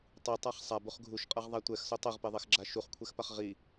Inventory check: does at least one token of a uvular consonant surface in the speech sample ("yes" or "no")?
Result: yes